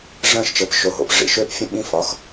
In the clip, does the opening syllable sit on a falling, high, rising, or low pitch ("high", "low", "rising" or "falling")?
falling